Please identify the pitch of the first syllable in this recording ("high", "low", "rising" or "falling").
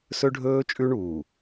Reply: high